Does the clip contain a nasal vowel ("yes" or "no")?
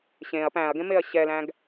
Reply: yes